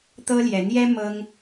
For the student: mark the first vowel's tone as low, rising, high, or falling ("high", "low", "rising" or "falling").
high